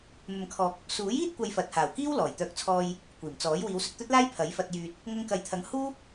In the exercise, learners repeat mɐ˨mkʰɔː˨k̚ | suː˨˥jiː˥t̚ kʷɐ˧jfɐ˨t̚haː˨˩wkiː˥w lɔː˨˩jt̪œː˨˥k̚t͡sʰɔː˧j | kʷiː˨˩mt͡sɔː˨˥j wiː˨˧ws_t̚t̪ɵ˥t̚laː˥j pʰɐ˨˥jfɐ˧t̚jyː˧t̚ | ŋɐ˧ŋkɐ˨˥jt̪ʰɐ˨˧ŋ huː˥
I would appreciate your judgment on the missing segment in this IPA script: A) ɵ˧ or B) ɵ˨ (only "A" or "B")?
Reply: B